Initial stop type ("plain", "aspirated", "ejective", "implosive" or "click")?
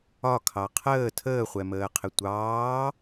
aspirated